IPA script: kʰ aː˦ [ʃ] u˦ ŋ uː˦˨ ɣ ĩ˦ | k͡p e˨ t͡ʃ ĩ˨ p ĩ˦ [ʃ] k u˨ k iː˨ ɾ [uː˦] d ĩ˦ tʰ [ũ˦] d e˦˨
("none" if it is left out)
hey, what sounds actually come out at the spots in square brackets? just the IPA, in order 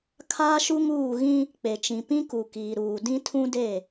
ʃ, none, uː˨, ũ˦

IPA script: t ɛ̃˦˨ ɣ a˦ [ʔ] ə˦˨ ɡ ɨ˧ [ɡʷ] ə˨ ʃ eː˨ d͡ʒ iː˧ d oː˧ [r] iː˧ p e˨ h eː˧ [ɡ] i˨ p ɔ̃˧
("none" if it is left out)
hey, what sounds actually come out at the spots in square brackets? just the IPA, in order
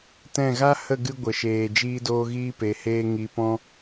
h, ɡʷ, ɣ, ŋ

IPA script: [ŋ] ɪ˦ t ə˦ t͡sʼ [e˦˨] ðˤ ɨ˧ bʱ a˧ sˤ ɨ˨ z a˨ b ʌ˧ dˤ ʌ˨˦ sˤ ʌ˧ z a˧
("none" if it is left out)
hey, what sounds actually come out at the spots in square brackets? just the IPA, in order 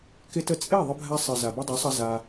k, e˦˨

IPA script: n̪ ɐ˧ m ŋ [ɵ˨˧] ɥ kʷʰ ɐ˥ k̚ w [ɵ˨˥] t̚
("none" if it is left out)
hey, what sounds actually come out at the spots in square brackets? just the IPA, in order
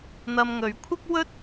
ɵ˨˧, ɵ˥

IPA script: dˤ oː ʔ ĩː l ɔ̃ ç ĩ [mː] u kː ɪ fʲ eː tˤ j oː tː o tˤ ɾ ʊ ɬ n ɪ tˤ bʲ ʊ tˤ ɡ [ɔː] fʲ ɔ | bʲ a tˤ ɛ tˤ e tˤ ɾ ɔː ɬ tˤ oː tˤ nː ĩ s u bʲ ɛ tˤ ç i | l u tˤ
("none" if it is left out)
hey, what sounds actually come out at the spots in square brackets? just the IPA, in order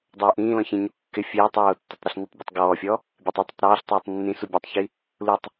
ɲ, ɔː

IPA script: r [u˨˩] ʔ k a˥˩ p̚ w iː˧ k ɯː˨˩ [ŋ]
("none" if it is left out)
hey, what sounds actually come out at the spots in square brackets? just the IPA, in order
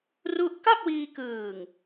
u˥˩, ŋ

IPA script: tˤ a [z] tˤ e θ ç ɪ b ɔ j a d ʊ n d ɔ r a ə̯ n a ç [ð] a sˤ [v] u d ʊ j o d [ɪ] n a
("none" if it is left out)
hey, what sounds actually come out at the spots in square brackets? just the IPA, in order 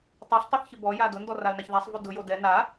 ɬ, ð, v, ɛ

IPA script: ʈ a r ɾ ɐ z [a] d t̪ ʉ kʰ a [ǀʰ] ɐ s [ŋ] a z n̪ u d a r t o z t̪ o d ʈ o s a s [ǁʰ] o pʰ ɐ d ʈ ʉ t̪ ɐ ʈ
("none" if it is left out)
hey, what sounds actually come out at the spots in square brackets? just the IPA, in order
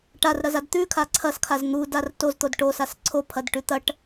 a, ǀʰ, kʰ, ǀʰ

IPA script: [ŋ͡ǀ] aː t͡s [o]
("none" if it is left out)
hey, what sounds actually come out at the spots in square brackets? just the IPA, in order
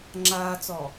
ŋ͡ǁ, ɔ

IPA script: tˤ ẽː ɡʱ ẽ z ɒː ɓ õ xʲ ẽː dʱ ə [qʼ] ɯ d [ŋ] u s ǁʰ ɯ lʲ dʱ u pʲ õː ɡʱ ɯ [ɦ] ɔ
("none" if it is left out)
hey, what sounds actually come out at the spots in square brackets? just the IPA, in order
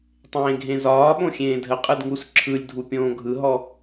qʼ, ŋ, ɦ

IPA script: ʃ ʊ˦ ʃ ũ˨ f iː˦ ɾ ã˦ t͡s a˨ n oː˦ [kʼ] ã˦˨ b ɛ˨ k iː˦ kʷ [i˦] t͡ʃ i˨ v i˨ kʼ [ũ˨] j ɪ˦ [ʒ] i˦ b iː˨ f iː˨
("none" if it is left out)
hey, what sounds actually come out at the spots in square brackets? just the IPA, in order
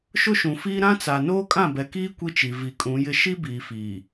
kʼ, i˦, ũ˨˦, ʃ

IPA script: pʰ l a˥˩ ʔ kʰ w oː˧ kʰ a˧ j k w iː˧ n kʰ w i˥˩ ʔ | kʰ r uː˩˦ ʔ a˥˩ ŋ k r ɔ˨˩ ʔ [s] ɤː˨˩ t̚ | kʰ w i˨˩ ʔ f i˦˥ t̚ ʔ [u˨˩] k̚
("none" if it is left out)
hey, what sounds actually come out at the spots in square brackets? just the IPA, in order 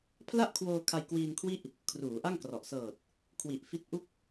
s, u˥˩

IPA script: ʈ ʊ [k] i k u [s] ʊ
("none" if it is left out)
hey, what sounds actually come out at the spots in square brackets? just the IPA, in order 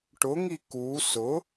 ŋ, s

